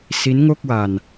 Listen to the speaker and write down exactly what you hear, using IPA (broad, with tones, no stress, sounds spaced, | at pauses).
s i˦˥ n ŋ o˥˩ k̚ w a˧ n